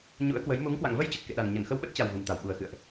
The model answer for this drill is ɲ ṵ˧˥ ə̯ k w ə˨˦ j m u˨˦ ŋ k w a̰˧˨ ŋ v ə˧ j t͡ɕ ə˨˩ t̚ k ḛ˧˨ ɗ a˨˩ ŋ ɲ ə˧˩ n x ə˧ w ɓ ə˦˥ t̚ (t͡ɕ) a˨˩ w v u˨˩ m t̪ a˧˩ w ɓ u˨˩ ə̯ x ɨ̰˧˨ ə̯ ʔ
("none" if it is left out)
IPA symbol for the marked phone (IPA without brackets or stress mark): t͡ɕ